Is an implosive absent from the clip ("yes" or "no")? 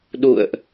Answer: no